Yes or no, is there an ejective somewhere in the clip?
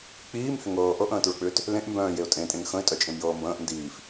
yes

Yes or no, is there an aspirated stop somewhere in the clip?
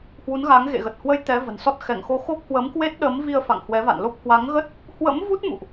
no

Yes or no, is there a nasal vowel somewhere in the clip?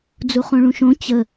yes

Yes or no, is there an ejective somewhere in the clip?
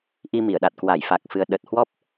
no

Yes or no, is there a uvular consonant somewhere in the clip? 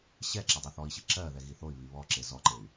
no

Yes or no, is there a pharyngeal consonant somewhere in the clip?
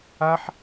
yes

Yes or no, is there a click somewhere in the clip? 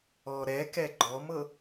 yes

